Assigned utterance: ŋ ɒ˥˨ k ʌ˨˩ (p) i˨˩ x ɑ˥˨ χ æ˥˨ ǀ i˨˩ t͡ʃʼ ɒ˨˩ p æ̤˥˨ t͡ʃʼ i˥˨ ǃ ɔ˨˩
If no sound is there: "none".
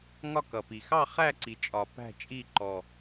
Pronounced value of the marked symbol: p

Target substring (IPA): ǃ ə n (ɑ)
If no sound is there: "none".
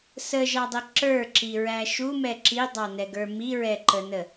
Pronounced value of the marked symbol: ə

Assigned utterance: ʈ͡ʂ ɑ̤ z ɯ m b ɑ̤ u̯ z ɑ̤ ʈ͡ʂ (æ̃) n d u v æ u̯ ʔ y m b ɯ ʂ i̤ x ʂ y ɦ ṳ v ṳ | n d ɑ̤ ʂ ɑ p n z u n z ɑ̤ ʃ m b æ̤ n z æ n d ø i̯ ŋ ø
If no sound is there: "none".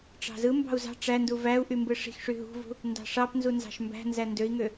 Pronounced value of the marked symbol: æ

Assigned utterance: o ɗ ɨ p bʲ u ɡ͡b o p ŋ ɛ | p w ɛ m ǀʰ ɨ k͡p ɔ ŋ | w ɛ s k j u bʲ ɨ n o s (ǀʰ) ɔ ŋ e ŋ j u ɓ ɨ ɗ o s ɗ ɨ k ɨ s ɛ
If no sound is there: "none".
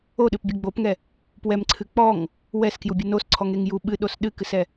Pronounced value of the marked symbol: ǀʰ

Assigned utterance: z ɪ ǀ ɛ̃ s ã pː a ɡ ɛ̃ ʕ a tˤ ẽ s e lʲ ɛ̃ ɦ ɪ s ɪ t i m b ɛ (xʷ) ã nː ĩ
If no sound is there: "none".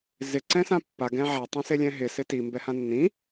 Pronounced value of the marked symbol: h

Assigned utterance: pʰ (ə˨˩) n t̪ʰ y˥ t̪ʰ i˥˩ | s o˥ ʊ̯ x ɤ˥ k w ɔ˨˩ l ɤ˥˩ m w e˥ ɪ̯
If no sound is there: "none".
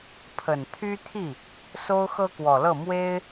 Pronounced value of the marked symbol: ə˨˩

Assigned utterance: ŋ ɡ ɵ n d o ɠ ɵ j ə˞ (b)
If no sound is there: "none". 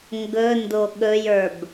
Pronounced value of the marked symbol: b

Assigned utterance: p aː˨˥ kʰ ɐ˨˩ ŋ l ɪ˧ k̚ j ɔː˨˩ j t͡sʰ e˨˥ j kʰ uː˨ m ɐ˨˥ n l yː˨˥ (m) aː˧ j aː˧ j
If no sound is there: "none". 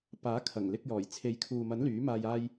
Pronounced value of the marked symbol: m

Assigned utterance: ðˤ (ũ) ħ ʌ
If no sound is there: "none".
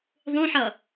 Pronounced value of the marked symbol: ũ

